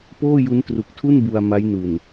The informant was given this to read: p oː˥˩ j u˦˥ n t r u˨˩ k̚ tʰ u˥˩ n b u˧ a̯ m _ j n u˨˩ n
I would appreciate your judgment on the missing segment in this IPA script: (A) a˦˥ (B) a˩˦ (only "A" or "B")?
A